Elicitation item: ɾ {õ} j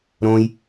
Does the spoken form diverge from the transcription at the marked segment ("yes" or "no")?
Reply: no